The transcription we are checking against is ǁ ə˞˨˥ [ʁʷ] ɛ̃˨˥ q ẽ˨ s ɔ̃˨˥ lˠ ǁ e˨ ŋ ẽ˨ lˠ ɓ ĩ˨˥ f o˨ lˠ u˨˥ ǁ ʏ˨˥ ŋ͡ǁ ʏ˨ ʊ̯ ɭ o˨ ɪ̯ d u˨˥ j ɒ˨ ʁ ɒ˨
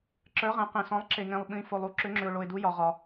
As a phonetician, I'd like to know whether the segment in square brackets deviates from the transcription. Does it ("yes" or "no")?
yes